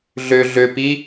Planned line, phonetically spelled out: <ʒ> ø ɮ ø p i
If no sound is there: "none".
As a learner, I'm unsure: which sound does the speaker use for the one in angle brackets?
ɮ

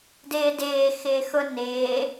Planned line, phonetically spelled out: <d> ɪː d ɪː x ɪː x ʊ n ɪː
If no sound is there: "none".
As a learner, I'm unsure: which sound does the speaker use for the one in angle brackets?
d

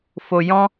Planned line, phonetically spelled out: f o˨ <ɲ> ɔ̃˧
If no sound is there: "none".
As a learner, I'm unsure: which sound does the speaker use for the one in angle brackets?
j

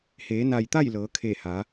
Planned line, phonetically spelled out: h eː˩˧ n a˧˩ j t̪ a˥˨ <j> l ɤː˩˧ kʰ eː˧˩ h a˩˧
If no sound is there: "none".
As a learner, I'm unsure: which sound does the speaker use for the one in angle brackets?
j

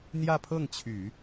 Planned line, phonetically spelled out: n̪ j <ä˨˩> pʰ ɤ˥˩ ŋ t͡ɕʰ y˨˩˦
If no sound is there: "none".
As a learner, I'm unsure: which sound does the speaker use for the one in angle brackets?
ä˥˧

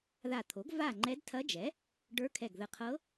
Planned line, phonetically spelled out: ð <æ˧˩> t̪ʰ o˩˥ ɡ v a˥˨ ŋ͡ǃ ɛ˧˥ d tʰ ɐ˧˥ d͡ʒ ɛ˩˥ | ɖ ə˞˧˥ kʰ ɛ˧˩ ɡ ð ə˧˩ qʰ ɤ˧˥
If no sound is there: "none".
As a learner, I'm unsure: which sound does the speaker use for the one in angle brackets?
a˧˩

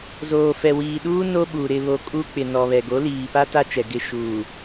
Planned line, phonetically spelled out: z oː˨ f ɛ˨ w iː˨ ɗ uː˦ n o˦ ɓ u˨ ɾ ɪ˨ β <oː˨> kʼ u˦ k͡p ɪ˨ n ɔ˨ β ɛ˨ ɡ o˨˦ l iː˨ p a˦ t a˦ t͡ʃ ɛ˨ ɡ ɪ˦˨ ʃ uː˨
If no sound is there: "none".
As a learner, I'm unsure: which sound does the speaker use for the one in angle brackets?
o˨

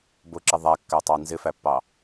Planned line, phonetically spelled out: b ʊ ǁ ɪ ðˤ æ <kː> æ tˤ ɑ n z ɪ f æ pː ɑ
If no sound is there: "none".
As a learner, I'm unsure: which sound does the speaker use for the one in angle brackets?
kː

